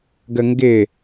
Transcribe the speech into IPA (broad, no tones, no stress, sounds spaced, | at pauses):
ɡ ə ŋ ɡ ɪ